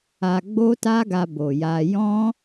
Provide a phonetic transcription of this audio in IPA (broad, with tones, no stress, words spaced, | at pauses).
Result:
a˧ɡ͡bo˦ta˦ɡa˧ bo˨ja˧ jɔ̃˦